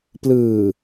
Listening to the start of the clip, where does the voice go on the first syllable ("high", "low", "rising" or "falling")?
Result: low